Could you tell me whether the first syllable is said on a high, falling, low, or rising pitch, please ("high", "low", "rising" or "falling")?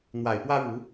low